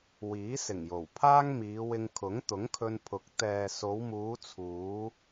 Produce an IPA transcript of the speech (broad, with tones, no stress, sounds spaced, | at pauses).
w iː˨˥ s ɪ˨˩ ŋ j o˨˩ w pʰ aː˥ ŋ m iː˨˧ w ɪ˧ ŋ kʰ ʊ˨˥ ŋ t̪ ʊ˨˥ ŋ kʰ ɵ˧ n pʰ ʊ˨˥ k̚ t̪ ɛː˨ s o˨˧ w m uː˨˧ t͡sʰ uː˨˧